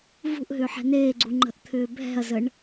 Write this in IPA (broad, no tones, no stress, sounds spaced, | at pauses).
v ṳ ʔ ɦ ʏː ħ ɛ̤ n eː ɡ͡ǀ u ŋ͡ǃ ə̤ ʔ t̪ʰ ʏː bʱ ɛ̤ ɐ̯ z ə ɳ